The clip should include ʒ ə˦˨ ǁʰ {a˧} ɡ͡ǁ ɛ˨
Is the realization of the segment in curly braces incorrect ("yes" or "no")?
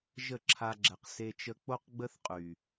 no